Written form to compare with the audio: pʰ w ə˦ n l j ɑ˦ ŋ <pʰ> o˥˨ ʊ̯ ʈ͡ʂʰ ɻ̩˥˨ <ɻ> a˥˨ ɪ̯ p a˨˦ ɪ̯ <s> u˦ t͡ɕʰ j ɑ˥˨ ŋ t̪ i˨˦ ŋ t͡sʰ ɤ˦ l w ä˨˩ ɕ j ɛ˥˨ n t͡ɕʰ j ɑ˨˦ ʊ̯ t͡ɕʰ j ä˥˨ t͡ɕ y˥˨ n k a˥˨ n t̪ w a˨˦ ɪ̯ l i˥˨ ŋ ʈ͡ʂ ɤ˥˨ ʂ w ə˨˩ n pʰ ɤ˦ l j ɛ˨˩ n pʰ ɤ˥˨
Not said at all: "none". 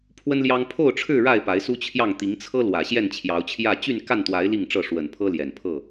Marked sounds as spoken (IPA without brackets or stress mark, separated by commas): pʰ, ɻ, s